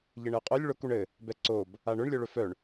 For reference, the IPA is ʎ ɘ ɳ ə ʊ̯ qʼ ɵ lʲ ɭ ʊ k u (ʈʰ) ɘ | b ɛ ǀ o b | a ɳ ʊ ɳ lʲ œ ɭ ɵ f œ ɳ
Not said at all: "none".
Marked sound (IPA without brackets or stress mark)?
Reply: ɳ